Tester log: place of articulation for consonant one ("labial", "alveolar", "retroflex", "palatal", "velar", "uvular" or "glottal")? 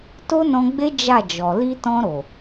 alveolar